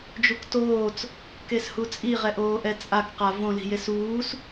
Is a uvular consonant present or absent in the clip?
present